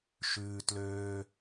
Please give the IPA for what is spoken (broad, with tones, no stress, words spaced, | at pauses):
ʃʉː˩ tløː˩